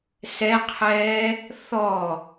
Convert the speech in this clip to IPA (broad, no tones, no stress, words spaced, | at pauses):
sɛqʰɛː | θɔ